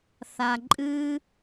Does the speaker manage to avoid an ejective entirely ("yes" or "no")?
no